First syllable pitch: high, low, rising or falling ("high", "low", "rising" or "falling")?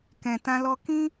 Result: low